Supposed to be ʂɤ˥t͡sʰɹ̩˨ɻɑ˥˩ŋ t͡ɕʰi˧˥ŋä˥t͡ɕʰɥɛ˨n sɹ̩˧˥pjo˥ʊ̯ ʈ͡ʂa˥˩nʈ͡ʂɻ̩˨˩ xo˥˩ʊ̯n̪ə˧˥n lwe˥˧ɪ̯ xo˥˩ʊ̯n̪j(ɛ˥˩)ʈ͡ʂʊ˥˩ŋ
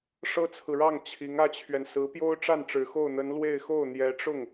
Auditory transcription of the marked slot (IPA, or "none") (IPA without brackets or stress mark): ɛ˧˥